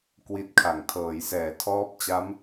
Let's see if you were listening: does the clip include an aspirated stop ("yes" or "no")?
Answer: yes